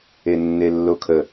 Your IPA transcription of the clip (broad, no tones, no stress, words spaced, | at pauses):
enːelːokʰə